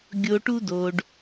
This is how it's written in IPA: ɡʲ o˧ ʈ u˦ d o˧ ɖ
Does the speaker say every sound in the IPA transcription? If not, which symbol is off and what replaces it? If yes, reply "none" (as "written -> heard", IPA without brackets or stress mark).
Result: none